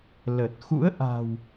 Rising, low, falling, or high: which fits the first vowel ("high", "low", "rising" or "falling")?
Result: low